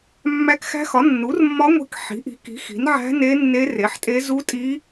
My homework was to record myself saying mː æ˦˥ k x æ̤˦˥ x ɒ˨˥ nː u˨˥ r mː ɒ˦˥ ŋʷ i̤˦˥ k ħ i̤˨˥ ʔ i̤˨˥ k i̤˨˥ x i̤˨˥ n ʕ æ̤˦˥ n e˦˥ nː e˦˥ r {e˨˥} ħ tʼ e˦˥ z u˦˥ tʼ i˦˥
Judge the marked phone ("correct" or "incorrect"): correct